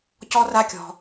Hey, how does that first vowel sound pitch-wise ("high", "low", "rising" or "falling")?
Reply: high